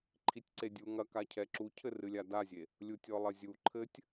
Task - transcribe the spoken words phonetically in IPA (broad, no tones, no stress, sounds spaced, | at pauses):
ǃʰ i tʲ ǀ e dʲ u ŋ ɐ k a cʰ ɛ ǁ u cʰ ɘ r ɨ lʲ a d a zʲ e | lʲ u tʲ ɔ lˠ ɐ zʲ u ǃʰ ɘ tʲ